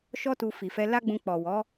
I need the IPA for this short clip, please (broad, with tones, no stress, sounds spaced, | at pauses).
ʃ ɔ˦ t u˧ f i˨ f ɛ˧ l a˦ ɡ͡b ũ˧ k͡p ɔ˨ w ɔ˨˦